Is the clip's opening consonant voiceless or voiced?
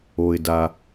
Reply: voiced